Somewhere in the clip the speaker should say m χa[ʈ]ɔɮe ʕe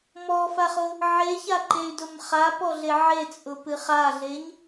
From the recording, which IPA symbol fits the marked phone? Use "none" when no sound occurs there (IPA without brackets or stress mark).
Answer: p